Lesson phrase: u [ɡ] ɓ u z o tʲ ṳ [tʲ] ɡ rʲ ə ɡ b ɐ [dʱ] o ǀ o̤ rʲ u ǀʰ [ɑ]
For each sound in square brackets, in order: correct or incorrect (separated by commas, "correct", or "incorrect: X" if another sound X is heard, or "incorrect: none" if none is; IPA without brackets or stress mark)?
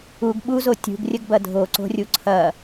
correct, incorrect: none, correct, incorrect: ɐ